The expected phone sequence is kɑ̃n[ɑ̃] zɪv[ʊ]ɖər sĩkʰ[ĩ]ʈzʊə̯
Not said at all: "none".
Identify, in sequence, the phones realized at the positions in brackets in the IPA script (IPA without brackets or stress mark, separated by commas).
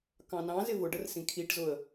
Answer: ɑ̃, ʊ, i